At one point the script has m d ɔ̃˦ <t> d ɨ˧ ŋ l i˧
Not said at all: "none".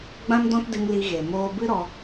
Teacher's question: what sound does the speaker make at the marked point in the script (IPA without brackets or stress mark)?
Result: t